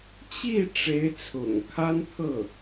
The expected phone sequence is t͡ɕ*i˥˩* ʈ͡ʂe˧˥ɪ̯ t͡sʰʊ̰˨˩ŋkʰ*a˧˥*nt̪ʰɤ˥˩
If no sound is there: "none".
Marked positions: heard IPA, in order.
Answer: i˥˩, a˥

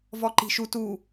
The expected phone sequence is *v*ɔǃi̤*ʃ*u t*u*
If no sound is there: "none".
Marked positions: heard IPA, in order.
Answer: v, ʃ, u

